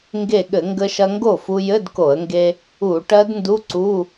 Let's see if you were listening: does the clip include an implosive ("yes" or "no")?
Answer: yes